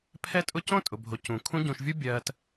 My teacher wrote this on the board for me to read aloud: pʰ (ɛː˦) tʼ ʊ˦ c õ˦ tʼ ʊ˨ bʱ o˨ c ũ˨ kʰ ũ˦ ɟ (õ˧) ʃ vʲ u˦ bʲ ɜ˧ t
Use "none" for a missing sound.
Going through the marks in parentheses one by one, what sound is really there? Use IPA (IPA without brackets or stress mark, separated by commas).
ɛ˦, ũ˧